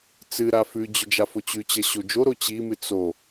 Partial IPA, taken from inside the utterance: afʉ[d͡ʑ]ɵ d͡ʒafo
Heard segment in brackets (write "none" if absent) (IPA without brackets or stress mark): d͡ʑ